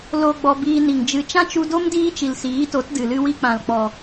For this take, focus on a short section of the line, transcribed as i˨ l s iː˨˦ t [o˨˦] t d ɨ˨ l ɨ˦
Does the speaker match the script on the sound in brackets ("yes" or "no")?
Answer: yes